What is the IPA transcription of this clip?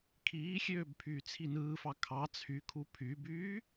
kʰ iː xʲ øː b pʰ yː t͡sʰ i n ɯː f ɑ kʰ ɑ t͡sʰ y kʰ u pʰ y b yː

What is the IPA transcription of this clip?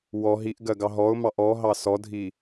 w ɔ ɦ i ʔ ɡ ɜ ɡ ɑ ɦ ɔ ʊ̯ m ɑ ʔ ɔ ɦ ɑ s ɔ dʱ i

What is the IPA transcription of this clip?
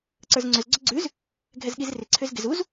ǀ ə˞ z ŋ͡ǀ ʏ z ɡ͡ǀ ʏ ɡ͡ǀ ʉ z | ɡʱ ɛ z ɠ i z r ɪ ǀʰ ʏ z ɡ ɪ z u z

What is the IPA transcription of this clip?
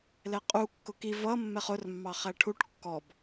l ɛ qʼ u kː ʊ k i v ʌ mː ɛ χ ʊ r mː ɑ χ æ ʈʰ u ʈ kː ɔ b

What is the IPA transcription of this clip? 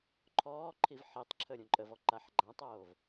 ǃʰ ɔː ǃʰ i v ħ i tˤ ǁʰ ə ɾʲ ũ ǃʼ ə v ɔ ǃ a ħ ɡ͡ǃ ã tˤ oː v

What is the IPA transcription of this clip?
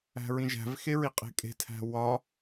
æ̤ ɹ ĩ ʒ æ̤ v x e ɹ i qʼ e̤ kʼ e̤ tʰ æ̤ w ɒ

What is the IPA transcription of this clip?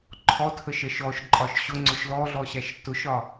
ǃʰ ɔ tʰ ə ʃ ɜ ʃ ɔ ʃ ǃʼ ɒ ʃ ɕ ʊ ŋ͡ǀ ʊ ʃ l ɔ ɮ ɔ ɕ æ ʃ t ʊ ʃ ɒ

